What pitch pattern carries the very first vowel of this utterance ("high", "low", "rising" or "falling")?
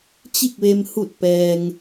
falling